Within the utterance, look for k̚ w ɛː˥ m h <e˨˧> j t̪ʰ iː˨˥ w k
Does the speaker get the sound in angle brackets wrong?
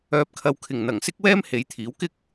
no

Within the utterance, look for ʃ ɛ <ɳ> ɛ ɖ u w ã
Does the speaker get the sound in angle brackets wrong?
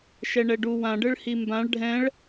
no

